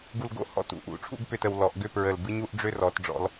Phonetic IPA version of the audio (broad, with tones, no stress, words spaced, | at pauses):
ɡu˧lɡo̰˥ hɔ̰˧˩t ṵ˥˧ʔṵ˧˩ʈ͡ʂʰṵ˥˧ɡ pʏ˥˧tə˩˧w lɔ˩˧ʔɡʏ˥˧pɹə˧˩l bɨ˥ɲu˥ʔ ɖ͡ʐʏ˥rɔ˩˧t ɖ͡ʐɔ̰˩˧l